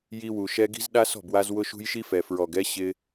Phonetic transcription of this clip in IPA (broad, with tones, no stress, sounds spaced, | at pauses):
j i˧ w u˨ ʃ ɛ˧ ɡ i̤˦ z ɗ a˦ s ɔ̤˦˨ b w a˧ z w ʊ˦ ʃ ṳ˦ j ʃ i˦ f ɛ˨ f ɹ ɔ˨ ɡ ɛ˦ ɕ ɪ˧